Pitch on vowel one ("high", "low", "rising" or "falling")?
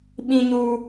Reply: high